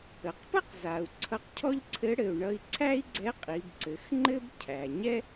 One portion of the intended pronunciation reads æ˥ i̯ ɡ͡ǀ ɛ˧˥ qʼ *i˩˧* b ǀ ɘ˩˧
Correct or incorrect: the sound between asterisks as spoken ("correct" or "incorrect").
correct